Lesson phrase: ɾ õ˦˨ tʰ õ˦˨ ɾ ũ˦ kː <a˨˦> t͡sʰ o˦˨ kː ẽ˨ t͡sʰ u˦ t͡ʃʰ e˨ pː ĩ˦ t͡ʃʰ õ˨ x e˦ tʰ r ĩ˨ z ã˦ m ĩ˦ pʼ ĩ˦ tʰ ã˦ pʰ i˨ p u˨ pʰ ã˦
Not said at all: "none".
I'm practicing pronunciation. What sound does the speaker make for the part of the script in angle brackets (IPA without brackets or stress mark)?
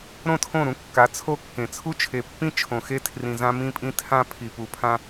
a˨˦